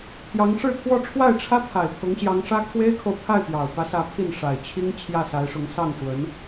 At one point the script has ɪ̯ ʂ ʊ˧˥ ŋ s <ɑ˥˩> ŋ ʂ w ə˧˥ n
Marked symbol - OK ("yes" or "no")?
yes